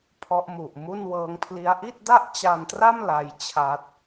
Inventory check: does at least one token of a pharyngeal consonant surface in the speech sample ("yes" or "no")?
no